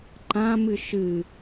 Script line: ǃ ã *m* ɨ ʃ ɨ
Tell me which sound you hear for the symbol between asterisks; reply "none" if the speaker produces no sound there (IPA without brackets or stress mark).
m